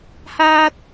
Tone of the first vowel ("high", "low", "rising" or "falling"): high